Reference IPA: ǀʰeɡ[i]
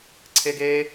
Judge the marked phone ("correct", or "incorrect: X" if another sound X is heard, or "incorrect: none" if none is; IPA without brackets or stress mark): incorrect: e